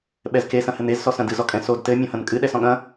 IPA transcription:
ɓɛzke sɐ̃hɘnez sɔsɐ̃dɨ zɔkʼɛ̃sod tɘ mʲɔ̃hɐ̃nkʼɨ ɗɛsɔ̃ɠɐ̃

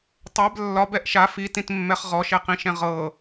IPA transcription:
tˤɛb lːɒbɛʔ ʃa fitĩtmːɛχ ʁɔʃɛqĩʃɛ̃ ʁɤ

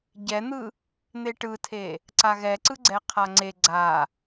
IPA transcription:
ɟɛn̪ɯ | n̪eʈɯtʰe | ǀaɣɛǀɯɡ͡ǀɛ qʰaŋ͡ǀe ɡ͡ǀa

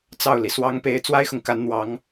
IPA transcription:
t͡sɑ˥˩ʊ̯li˩ swɑ˧˥ŋpe˧˥ɪ̯ t͡swa˥ɪ̯xʊ˨ŋka˧˥nn̪wɑ˧˥ŋ

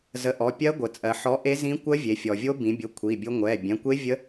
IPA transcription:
zə˨˥ʔɔ˩˧˩pʲɜ˦˥ ɡʷə˩t͡sʼɜ˩˧ ħɔ˨˥ ʔe˦˥zĩ˦˥ kʷɜ˦˥vʲe˩˧fʲɔ˩vʲo˦˥ bĩ˩˧bʲʊ˩˧˩ kʷʰi˩˧˩bʲʊ˦˥ ŋʷɛ˩˧˩ bʲɛ̃˩˧˩kʷe˦˥ vʲə˦˥

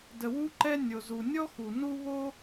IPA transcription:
də˩wu˥ǃɛ˥ nʲo˩zu˩ nʲɔ˥xu˩ nu˥ βo˥

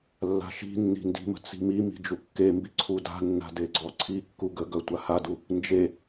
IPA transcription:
lːa̤ʃi̤nːi̤ ndi̤mə̤ t͡si̤mimi̤ d͡ʒukːembi ǀʰuda̤nːa̤ deɡ͡ǀɔǀʰikːu ɡəɡœ tʷahadu | nd͡ʒe

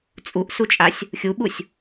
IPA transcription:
t͡sʼuʔsut͡ʃʼasʲ | xʲuɓusʲ

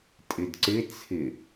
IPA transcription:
tʼɪdǀɪ t͡sʰɪ

